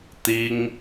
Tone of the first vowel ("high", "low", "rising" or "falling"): high